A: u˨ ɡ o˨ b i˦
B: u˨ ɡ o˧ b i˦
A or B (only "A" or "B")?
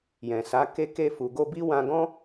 B